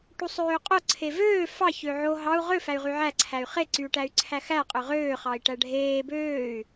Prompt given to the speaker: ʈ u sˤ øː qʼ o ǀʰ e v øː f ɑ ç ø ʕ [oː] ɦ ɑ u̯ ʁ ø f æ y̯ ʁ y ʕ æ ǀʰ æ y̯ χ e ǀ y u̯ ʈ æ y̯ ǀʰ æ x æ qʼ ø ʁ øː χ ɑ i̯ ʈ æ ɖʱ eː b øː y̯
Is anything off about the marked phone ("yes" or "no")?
yes